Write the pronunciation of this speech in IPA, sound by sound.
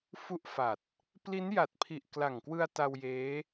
f u˦˥ ʔ f a˨˩ t̚ | p l i˦˥ n j a˨˩ t̚ pʰ i˨˩ ʔ k l a˨˩ ŋ k w ɯ˧ a̯ t a˧ w j eː˦˥

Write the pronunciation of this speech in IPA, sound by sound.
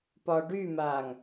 p ɒ ɖ y m a ŋ

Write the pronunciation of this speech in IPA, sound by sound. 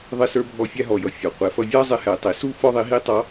ðˤ ɪ˧ s ə˞˧ bʱ ɔ˧ fʲ æ˧ ɦ ɔ˩ j ʌ˩˧ fʲ ɔ˩ qʷ ɛ˩˧ f ʌ˧ vʲ ɑ˥ zˤ ɪ˧˥ h ɛ˩˧ tˤ i˩˧ s u˥ f ɔ˥ ðˤ i˧˥ ɦ i˥ tˤ ɑ˧˥

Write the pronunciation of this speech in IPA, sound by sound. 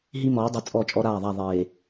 ɦ i˦ m ɔː˨˦ dˤ i˨ t͡sʼ ɔ˦˨ t͡ʃʼ ɔ˦ ɾ aː˦˨ ðˤ a˦˨ ðˤ eː˨

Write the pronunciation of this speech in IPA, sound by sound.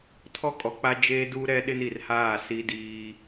tʰ ɔ˦ kʼ ɔ˨ k͡p a˦ d͡ʒ eː˦ d uː˦ ɾ ɛ˦ ɗ ɪ˦ n i˨ r h aː˦˨ s i˦ d iː˦

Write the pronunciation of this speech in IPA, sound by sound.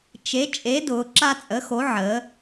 t͡ʃ e˨˥ t͡ʃʼ e˨˥ d ʊː˩˧ ǁ a˦ t͡sʼ ə˨˥ x o˨˥ ʕ ə˩˧

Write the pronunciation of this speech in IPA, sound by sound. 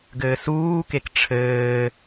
ɡ ɘː s uː k e k ʈ͡ʂʰ ɘː

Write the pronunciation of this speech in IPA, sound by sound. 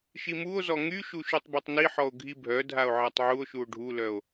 ʃ i m u o̯ z ɔ ŋ y ʃ u ʃ u tˤ b œ tˤ n i ħ ɔ o̯ ɡʱ i bʱ œ dʱ a o̯ ʕ a tˤ ʕ u o̯ ʃ u o̯ ɖʱ u l œ o̯

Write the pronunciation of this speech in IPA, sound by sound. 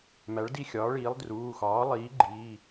m æ˩˥ ɭ d i˦˨ xʲ ɒː˩˥ ɭ iː˩˥ lˠ d r uː˩˧˩ x ɒː˩˥ lˠ iː˩˥ ɡ͡ǃ iː˩˧˩

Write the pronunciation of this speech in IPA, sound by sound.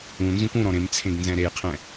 ũ n z ũ kʷ ũ ɾ ɔ̃ ɾ ẽ m t͡sʰ ẽ ɡ n z ɛ̃ ɾ e j qʰ ɛ̃

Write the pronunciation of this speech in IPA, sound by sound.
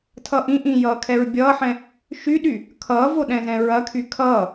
tʰ ʌ ʔ ĩ ʔ ĩ j ʌː kʰ ɛ ɹ bʲ ʌː ħ ɛ̃ | ʃ y ɗ y | kʰ ʌː v o ɗ ɛ̃ z ɛ̃ ɹ ɐ kʰ y kʰ ʌː

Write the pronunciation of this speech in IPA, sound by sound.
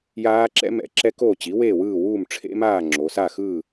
j aː˦˥ ǁ ɛ̰˦˥ m ɛ̰˧˩˧ ǁ ɛ˦˥ k o˥˨ t͡ɕ i˩˥ w eː˥˨ w ɯː˥˨ w uː˥˨ m ʈ͡ʂʰ ḛ˦˥ m aː˥˨ ŋ͡ǁ o˩˧ s a˥˨ x ɯː˥˨

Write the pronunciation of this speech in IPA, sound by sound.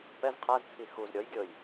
p ɛ z qʰ a z t͡sʰ i x u z ɾʲ ɔ j ɡʲ ɤ j

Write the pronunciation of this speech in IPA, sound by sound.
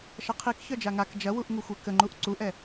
ʃ ɐ qʰ i k ç œ d͡ʒ a ŋ a k d͡ʒ ɐ w u ʔ ŋ u xʷ ɛ k ə ŋ͡ǃ u ʔ ǀ u ʔ ɛ

